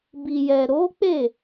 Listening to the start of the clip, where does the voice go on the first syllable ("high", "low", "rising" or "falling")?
low